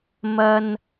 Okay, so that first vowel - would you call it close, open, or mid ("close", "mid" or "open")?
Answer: open